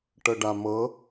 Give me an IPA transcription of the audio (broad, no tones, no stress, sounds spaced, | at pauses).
ʈ ɤ ɖ a m ɤ